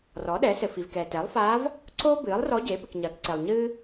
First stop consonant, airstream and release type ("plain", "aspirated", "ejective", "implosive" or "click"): implosive